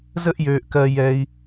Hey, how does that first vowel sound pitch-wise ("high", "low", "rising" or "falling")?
high